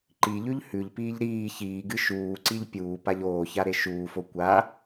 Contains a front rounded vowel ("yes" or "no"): no